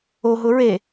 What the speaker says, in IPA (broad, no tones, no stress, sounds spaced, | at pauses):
o ɦ ʊ ɹ e